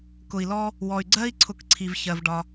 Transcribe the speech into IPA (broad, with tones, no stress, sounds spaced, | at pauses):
k ʊ˩ i̯ l ɔ˦ | w ɔ˩ y̯ ɡ͡ǀ ɜ˥ i̯ ǀʰ ʊ˨ k ǀʰ i˩ v ç ɜ˩ v ɖ ɒ˨